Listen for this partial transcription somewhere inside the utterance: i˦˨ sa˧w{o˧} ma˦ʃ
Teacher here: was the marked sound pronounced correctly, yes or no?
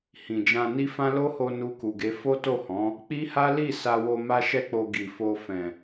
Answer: yes